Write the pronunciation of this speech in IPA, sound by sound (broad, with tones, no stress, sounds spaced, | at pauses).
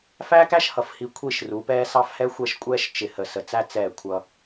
f æ˦ k æ˦ ʃ h ʌ˨ f h i˨ kʷʰ i˦˨ ʃ r u˨˦ p ɛː˦ s ɑ˦ f h ɛ˦ xʷ ɛ˦˨ ʃ kʷʼ ɛː˦ ʃ t͡ʃ ɪ˨ h ə˨ s ə˨ t͡s æ˦ t͡s ɛː˦˨ kʷʰ ʌ˦